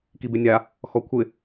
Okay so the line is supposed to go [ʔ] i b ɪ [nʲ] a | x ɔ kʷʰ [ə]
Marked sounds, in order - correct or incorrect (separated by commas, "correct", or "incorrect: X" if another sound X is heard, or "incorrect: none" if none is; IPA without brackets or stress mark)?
incorrect: k, correct, incorrect: ɪ